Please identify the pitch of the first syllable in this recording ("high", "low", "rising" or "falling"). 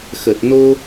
low